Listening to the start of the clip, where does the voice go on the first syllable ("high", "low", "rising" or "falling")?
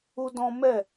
high